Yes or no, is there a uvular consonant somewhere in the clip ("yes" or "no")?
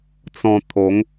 no